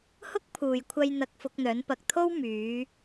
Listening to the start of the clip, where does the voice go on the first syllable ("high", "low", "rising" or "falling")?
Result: high